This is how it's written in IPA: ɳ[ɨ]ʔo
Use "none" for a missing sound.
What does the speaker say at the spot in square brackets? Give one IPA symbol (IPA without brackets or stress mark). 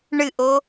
ɨ